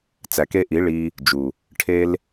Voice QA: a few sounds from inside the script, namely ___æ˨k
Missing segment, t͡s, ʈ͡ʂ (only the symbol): t͡s